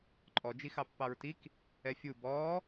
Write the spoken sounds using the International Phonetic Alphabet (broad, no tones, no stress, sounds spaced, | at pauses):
ǃʼ ɔ d͡ʒ i x ɑ pː ɑ ɹ t i k | ɛ fʲ u b ɔː